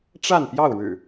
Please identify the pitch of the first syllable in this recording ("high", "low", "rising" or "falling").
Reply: falling